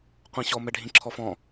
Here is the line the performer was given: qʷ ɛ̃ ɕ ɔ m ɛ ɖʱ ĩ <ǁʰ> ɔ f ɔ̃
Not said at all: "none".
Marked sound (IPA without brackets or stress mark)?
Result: ǁʰ